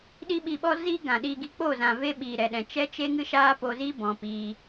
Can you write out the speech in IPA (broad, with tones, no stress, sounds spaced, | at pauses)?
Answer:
ɗ i˦ ɓ i˧ ɓ ɔ˦ z i˦ ɡ ã˨ ɗ i˧ ɡ i˧ k͡p o˦˨ z ã˨ v e˧ ɓ iː˨ ɾ ɛ˨ ɗ ɛ̃˨ t͡ʃ ɛ˦ t͡ʃ e˦ ŋ ɨ˦ ʃ aː˦ p o˧ z i˦ b ɔ̃˨ p iː˧